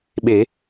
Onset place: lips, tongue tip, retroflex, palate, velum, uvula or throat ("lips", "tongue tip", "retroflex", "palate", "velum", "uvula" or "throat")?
lips